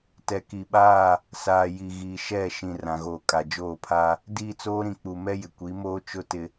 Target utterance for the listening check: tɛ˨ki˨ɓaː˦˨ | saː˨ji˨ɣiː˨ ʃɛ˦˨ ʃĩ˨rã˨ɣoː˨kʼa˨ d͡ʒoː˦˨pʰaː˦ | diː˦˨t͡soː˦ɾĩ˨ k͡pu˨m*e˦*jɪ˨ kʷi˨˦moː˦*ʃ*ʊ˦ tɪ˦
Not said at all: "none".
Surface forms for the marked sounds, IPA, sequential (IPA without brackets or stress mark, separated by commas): ɛ˦, t͡ʃ